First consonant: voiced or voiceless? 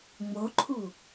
voiced